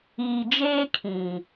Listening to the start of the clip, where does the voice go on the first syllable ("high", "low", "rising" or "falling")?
low